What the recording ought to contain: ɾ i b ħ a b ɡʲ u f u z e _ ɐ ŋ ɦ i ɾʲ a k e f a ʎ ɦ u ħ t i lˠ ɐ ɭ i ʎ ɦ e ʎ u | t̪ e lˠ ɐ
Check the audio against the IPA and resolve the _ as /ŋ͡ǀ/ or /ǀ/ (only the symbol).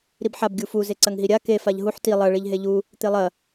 ǀ